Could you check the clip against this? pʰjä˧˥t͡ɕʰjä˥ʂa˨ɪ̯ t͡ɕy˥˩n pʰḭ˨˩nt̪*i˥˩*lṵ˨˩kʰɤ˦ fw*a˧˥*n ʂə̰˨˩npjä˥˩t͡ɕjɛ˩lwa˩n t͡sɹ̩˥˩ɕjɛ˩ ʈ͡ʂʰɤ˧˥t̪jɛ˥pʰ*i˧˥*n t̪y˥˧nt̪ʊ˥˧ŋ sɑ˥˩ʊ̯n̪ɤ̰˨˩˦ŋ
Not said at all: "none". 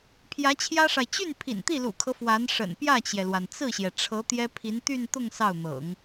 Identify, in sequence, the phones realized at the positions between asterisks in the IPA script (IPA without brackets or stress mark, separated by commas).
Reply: i˥˩, a˧˥, i˧˥